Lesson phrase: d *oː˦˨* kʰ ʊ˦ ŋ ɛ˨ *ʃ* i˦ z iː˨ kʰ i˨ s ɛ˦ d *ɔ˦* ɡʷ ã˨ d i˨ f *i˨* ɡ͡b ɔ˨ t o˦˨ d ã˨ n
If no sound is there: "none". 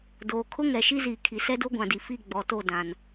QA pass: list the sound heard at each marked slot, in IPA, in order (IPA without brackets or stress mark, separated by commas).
oː˨, ʃ, o˦, i˦˨